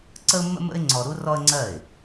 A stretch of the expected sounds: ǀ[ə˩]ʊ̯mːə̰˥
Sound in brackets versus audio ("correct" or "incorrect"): incorrect